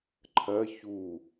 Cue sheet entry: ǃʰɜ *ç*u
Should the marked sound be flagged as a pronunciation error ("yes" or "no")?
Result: no